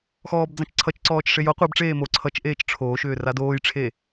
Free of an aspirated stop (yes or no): no